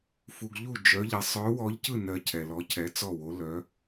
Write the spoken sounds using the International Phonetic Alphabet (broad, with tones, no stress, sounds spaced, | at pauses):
f u˧ ɡ ʎ u˥˨ d͡ʒ œ˧˥ ʎ ɛ˧ sˤ œ˧˥ w ɔ˧˥ ʎ c ɯ˥˨ n ɜ˧ cʰ ɛ˧ l ɔ˧˥ cʰ ɛ˧˥ t͡s ɔ˥˨ w o˧˥ l œ˧˥